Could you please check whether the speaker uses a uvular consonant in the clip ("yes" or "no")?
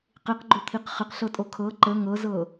yes